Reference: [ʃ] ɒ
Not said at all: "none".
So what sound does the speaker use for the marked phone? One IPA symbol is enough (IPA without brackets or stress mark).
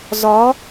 z